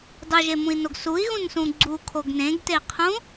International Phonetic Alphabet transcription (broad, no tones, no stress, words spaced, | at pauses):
dˤuʒemũi̯noɡ sui̯ɣũnsũ ɡ͡ǀukʰoɡ nẽɡtei̯qʰũ